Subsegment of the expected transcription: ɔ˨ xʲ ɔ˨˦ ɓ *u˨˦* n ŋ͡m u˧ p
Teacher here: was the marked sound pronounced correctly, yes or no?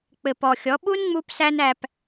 no